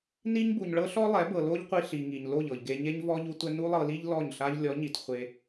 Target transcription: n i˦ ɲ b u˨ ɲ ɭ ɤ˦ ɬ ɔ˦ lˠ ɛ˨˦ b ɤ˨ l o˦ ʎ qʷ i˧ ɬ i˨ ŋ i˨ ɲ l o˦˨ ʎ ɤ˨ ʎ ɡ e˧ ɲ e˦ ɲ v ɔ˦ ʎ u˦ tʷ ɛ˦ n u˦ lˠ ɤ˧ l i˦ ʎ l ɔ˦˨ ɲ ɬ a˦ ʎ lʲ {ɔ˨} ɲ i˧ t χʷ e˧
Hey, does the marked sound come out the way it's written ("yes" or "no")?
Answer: no